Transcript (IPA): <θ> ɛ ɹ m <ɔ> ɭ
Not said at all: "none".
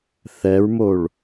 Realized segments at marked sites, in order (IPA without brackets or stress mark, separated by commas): θ, o